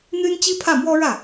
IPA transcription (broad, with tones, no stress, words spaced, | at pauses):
n̪y˥nt͡ɕi˥pʰä˥˩mwɔ˥ ɻä˥˩